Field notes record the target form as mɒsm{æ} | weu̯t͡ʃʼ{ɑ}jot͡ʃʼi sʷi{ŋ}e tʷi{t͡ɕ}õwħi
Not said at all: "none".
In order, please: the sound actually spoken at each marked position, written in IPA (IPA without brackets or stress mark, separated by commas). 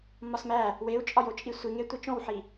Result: æ, ɒ, ŋ, t͡ʃ